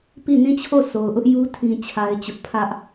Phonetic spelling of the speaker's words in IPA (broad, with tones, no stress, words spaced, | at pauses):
pi˦˨ nĩ˦˨t͡ɕʰo˦˨ so˨ʊ̯ʔʊ˦ʔju˦ tʰĩ˦t͡ɕʰa˦ɪ̯t͡ɕʊ˦ʔ pʰä˦ʔ